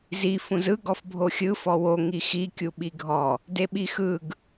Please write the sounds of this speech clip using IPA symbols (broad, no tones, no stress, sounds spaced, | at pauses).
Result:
z i f ũ z ɯ ɡ ɔ f bʱ o xʲ ɯ f ɔ w o ŋ i x i kʲ u ɓ i ɡʱ ɔ | d e ɓ i x ɯ ɡ